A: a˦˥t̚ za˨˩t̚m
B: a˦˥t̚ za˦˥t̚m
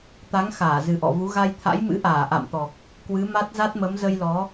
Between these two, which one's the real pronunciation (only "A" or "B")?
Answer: B